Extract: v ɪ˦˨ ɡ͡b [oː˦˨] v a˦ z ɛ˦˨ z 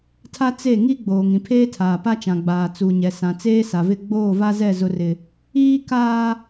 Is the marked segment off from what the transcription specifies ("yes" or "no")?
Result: no